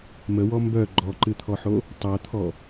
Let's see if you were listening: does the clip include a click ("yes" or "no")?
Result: yes